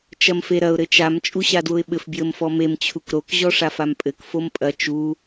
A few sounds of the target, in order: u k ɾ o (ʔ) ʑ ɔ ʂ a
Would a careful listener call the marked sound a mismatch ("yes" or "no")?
yes